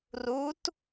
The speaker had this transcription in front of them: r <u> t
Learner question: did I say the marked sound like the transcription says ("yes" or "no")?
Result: yes